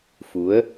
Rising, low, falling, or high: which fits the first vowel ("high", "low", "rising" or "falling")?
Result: rising